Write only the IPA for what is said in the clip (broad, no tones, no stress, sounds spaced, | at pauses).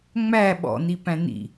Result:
ŋ͡m æ ɓ ɔ̰ n i p æ̃ n ḭ